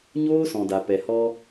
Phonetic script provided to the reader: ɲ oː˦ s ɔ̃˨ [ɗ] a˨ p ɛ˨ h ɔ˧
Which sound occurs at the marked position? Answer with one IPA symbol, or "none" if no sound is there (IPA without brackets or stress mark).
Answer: d